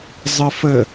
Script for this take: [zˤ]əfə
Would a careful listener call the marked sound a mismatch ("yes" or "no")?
no